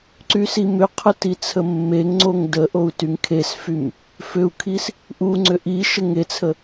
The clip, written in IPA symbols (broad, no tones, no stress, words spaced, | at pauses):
ǀysimʏqʰə tit͡sʰəmːeŋŋ͡ǀoŋ dəʔou̯ tyŋkʰesfym | fʏu̯kʰis | ʔuŋ͡ǀʏ ʔi ʃəŋet͡sʰə